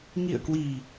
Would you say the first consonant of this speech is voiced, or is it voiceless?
voiced